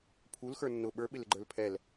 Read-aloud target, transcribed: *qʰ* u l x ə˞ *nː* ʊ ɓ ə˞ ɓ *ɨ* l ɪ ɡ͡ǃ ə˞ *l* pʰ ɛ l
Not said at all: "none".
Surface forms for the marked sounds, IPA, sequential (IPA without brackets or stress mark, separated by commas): pʰ, nː, ɪ, l